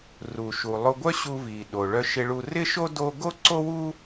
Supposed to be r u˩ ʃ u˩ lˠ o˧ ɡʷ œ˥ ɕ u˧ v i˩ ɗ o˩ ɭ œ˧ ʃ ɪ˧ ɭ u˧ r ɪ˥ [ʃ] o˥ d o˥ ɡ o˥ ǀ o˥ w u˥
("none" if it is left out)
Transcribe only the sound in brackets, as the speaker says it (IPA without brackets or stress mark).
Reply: ʃ